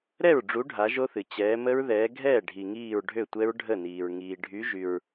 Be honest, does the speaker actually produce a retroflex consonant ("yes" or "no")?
yes